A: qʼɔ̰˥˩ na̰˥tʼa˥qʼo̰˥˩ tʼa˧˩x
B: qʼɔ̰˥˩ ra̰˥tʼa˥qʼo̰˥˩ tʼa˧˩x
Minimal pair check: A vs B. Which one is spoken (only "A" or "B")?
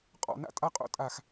A